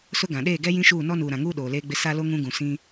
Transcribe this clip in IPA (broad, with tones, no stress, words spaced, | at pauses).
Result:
sʊ˦ɡã˨ ɗeː˦˨ɡɛ˦jĩ˦ʃuː˦˨ nɔ˦nuː˨ɾã˨ŋuː˦ ɗoː˨leː˦ɡ͡bɪ˦ sa˦lo˦ ŋũ˦ ɡũ˨sĩ˦